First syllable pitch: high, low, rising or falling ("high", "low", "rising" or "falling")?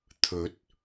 rising